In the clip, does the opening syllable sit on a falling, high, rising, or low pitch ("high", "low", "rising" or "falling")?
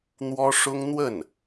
high